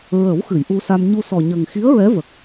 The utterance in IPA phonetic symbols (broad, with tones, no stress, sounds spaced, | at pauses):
ɹ ə˨˩˦ w x ɨ˨˩˨ j ʔ u˧ s a˧ m ɲ u˧ s ɔ˨˩ ɲ ə˨˩ ŋ x i˧˥ ə̯ ɹ ɛ˧˥ v ə˨˩ k̚